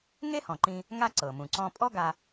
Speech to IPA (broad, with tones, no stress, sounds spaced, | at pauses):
ŋ e˥ h ɔ̃˩ ǃ ĩ˧ | ŋ a˥ ǀ ɤ˩ m ũ˩ ǀ ɔ̃˧ pʼ ɔ˥ ɡ a˧